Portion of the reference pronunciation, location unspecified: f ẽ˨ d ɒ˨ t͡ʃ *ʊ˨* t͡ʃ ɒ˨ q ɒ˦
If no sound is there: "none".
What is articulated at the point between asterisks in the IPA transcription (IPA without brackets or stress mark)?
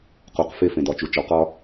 u˨